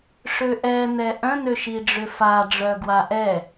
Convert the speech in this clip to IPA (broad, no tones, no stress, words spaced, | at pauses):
ʂøʔɛ nɛʔœ̃ nøʃiɖ͡ʐʏfa ɖ͡ʐœɡwaʔɛ